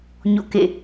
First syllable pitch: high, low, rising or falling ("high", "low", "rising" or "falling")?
falling